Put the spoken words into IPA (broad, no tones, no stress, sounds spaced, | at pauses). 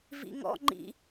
v ḭ ŋ ɔ̰ ŋ͡ǃ ḭ